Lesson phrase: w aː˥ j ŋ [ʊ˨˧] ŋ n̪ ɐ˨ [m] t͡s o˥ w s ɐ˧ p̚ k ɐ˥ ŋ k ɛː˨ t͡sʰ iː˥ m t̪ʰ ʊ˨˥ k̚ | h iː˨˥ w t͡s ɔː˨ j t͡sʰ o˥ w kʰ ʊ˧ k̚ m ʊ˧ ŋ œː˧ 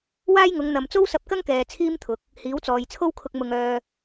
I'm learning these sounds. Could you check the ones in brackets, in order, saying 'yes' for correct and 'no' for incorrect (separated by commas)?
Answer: yes, yes